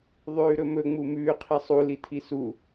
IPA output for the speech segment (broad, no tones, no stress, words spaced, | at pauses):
ðˤʉːɾɵmɵ ŋ͡mumʉː qʰisˤu litʰisu